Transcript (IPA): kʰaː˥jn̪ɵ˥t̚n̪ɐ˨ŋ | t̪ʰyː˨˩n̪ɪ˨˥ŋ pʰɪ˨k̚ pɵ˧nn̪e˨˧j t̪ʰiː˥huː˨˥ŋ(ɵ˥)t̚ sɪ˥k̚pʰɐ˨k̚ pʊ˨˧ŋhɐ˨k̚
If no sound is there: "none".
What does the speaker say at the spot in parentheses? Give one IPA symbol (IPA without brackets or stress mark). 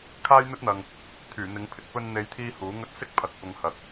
ɵ˥